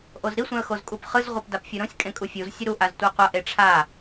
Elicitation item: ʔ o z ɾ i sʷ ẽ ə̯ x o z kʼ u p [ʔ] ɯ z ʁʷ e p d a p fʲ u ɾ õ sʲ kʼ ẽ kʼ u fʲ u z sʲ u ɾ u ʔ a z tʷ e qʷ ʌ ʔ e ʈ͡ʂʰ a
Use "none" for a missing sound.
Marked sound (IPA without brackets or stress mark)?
χ